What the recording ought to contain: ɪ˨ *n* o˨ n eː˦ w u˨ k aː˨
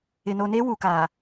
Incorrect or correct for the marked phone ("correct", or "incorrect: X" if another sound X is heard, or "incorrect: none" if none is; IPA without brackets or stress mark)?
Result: correct